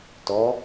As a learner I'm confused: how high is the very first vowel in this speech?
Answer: mid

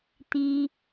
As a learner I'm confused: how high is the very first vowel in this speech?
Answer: high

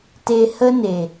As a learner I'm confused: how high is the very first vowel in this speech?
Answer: mid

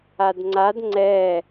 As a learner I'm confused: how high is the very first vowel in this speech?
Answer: low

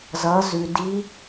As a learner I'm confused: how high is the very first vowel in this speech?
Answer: mid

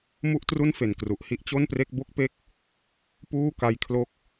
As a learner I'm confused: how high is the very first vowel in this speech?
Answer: high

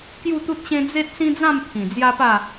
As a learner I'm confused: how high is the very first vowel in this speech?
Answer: high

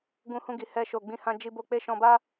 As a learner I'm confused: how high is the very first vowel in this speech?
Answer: high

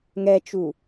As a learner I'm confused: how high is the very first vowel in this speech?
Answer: mid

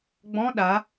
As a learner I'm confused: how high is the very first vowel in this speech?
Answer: mid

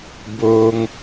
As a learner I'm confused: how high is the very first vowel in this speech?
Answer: mid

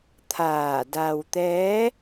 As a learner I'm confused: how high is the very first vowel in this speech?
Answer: low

